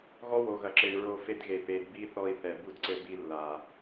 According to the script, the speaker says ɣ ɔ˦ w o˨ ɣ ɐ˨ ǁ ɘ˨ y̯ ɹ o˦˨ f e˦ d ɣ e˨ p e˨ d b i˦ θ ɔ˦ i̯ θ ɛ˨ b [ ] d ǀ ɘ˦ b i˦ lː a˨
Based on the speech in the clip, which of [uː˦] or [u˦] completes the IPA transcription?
u˦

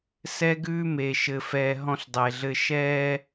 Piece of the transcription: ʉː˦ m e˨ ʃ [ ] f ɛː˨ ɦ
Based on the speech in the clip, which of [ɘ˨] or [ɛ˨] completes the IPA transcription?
ɘ˨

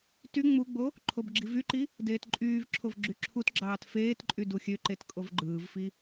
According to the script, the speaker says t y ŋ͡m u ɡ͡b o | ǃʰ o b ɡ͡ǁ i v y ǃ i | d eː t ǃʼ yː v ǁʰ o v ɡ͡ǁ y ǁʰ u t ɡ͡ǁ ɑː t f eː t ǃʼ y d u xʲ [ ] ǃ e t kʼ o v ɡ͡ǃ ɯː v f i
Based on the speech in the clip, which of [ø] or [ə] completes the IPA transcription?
ø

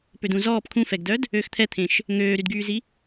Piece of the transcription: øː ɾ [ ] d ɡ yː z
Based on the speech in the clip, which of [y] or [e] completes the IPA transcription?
y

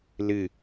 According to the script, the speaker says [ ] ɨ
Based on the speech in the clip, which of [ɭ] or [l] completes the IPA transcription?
l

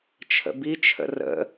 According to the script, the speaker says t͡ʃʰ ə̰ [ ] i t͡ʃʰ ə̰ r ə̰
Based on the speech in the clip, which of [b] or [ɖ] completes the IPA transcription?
b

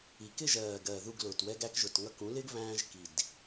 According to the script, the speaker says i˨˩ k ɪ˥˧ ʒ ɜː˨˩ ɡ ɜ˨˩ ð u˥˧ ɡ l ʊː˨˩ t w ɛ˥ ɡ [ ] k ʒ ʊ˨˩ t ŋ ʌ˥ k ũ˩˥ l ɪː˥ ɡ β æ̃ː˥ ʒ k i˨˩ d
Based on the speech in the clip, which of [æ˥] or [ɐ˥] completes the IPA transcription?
æ˥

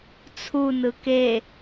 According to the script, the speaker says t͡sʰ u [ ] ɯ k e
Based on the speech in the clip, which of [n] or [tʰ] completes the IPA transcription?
n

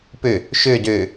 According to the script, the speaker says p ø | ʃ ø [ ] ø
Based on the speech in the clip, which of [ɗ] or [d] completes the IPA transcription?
d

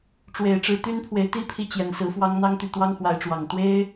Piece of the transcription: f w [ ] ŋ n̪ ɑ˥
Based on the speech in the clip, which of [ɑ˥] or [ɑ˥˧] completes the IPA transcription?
ɑ˥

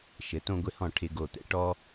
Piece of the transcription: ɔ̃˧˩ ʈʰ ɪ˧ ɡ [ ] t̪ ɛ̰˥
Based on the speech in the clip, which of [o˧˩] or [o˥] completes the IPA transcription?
o˧˩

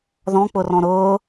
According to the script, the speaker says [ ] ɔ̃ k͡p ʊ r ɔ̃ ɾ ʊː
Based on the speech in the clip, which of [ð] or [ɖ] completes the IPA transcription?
ð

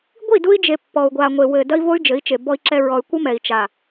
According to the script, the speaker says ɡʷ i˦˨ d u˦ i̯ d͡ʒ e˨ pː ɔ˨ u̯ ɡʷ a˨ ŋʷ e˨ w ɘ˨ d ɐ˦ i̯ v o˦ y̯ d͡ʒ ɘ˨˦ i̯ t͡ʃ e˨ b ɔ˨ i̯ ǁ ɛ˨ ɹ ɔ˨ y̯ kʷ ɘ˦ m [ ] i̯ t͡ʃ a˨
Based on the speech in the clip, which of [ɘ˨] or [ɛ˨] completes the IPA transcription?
ɛ˨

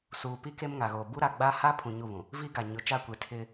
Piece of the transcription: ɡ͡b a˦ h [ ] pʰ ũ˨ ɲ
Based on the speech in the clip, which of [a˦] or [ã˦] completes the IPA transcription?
a˦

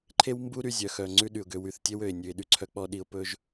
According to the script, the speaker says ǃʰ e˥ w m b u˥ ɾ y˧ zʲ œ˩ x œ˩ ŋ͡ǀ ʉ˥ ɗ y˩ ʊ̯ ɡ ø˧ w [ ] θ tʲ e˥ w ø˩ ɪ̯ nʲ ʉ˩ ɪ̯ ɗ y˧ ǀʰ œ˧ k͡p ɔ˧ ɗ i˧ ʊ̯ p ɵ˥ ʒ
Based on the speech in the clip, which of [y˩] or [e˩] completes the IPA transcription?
y˩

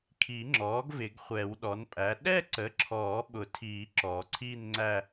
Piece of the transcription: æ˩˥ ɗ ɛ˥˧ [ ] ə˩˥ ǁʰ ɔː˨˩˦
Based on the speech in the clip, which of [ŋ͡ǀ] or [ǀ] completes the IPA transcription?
ǀ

